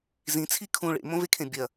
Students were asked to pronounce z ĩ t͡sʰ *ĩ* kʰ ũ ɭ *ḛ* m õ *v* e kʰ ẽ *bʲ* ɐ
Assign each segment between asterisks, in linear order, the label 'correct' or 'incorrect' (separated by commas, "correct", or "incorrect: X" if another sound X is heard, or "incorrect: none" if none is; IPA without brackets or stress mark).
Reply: incorrect: i, correct, correct, correct